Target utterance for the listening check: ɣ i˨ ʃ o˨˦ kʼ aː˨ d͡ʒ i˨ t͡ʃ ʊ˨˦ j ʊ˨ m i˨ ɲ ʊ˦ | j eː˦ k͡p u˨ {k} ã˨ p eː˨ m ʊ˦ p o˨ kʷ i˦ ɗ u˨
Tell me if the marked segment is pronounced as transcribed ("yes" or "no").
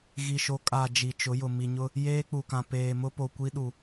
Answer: yes